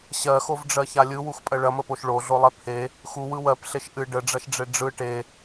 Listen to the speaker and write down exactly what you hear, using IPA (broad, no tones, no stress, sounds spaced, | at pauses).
ɕ ɜ x o v ɖ͡ʐ ɜ ç a lʲ ɯ w u x pʼ ɜ ɭ ɐ m ə p o ʃ ɭ o ɮ o lˠ ɛ pʰ e | x u w ɯ w ɜ p ɬ e ʃ ʔ ɨ ɖ ə ɖ͡ʐ ɐ ʃ ɖ͡ʐ e ɖ͡ʐ ɯ ʈ e